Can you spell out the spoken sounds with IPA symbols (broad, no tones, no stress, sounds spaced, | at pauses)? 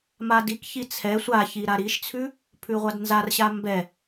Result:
m a d i k ç i t͡sʰ ɛ sʷ a ç i ɾ a ɾ i ʃ t͡sʰ ʉ | pʰ ʉ ʁʷ a d n z a r ɕ a m b ɛ